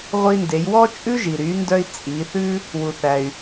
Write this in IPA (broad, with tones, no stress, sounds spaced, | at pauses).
ʁʷ i˧ n d e˩˧ j w ɔ˥ t͡ʃʼ ʉ˥ ʒ i˩ ɾ y˩˧ n d œ˧ i̯ t͡sʼ i˩˧ θ ʉ˥ | w u˩ θ æ˩ y̯